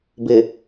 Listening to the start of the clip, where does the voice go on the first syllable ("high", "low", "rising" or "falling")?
low